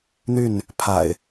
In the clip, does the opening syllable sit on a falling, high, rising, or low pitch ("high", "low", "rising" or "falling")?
falling